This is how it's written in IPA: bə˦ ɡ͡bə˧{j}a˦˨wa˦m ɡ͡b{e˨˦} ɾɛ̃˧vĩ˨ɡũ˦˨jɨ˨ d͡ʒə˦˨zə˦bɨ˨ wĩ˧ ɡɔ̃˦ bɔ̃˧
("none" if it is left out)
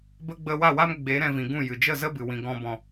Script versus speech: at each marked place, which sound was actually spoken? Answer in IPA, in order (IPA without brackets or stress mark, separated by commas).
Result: w, e˨˦